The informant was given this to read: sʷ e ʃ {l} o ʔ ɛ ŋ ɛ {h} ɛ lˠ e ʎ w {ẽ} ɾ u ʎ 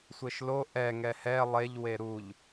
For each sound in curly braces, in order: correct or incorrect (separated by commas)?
correct, correct, incorrect